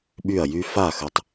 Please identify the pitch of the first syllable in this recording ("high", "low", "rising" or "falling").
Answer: falling